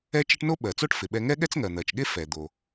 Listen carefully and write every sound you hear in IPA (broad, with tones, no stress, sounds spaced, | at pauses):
ɛ˥ t͡ʃ e˥ ʈ n o˥ ɓ ɜ˩ t͡s o˥ ʈ f ɪ˩ ɓ ɛ˧ ŋ ɛ˥ ɠ ɛ˥ t͡s ŋ ɜ˩ n̪ ɜ˩ t͡ʃ ɠ e˥ f ɛ˩ d̪ o˩